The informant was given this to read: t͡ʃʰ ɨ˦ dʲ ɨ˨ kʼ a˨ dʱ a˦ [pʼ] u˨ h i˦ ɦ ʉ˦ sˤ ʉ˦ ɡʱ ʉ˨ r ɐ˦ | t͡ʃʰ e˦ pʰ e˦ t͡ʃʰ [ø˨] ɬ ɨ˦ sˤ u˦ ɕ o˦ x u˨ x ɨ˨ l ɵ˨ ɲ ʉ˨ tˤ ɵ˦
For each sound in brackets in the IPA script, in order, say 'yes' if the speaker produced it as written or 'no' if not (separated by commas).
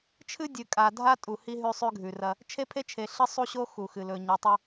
no, no